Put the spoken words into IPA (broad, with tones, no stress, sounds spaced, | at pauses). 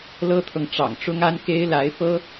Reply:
l ɤ˥ t̪ʰ ɤ˨ ŋ ʈ͡ʂ ɑ̰˨˩ ŋ ʈ͡ʂ ʊ˥ ŋ a˥ n k e˥ ɪ̯ l a˧˥ ɪ̯ f ɤ˥